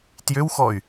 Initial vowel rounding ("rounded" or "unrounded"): rounded